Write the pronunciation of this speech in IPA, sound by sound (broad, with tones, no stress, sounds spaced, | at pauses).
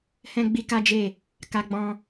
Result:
h ɛ̃˦ ɡ͡b i˦ k a˦ d͡ʒ e˦˨ | k a˦ ɡ͡b ɔ̃˦